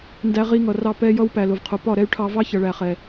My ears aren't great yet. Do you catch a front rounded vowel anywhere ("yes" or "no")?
yes